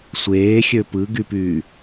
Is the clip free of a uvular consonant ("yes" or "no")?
yes